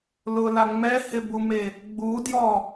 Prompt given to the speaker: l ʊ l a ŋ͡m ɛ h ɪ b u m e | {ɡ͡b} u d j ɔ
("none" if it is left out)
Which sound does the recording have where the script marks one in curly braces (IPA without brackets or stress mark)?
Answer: ɡ͡b